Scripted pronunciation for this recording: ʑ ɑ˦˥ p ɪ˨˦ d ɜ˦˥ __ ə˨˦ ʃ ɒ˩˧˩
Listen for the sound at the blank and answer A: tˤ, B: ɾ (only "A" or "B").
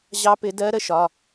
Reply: B